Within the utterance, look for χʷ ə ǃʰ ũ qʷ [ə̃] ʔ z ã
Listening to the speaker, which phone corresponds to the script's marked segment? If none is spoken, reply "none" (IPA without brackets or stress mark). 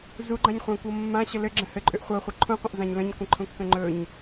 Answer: ə̃